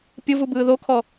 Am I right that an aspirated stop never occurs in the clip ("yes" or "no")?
no